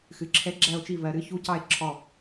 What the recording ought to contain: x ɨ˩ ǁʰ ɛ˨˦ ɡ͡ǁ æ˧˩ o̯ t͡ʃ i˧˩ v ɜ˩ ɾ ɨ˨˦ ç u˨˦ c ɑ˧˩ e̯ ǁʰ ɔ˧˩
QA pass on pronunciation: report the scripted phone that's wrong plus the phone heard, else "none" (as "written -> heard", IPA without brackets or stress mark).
none